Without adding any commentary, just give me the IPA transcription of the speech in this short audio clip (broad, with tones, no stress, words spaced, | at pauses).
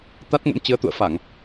t̪a˦˥t̚ŋə̰˧˥mt͡ɕɨ˨˦ə̯ t̪ṵ˧˨ə̯fa˧˩˨ŋ